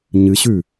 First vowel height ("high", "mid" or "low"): high